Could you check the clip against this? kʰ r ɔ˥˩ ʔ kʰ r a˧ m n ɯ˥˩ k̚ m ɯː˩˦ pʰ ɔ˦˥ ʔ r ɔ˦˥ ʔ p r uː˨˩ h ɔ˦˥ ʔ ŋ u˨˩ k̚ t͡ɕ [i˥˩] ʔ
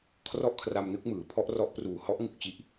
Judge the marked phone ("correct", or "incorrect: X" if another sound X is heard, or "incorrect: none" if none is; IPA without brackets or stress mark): incorrect: i˦˥